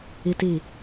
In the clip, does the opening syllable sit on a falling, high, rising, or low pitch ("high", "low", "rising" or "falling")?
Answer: high